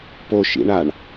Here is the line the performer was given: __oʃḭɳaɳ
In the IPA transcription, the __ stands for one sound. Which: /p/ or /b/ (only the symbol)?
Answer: p